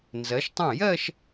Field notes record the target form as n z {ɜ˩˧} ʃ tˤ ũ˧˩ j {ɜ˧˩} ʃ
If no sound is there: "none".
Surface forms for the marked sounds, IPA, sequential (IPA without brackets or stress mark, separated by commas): ɜ˩˧, ɜ˥˧